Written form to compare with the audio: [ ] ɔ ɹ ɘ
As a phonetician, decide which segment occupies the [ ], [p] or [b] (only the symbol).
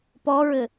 p